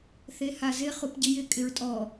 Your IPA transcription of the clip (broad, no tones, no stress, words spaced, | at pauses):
θehazɪ χupɟɪjɪ kʼɪɹtʼɔ